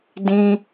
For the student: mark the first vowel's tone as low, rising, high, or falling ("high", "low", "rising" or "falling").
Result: high